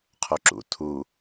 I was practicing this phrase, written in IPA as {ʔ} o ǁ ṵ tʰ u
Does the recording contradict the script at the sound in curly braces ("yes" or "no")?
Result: yes